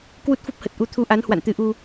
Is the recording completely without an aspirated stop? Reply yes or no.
no